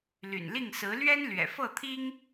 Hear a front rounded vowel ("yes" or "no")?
yes